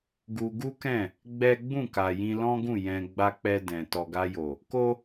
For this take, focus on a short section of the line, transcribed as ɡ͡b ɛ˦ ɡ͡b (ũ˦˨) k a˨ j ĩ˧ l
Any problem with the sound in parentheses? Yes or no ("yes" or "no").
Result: no